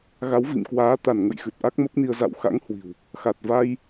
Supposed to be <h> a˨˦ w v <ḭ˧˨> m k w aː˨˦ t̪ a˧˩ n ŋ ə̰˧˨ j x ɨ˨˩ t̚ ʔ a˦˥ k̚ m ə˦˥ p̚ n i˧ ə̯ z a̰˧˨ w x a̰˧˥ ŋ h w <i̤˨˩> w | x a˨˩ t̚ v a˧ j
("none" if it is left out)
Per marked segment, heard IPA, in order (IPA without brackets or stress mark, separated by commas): ɣ, ḭ˧˨, i̤˨˩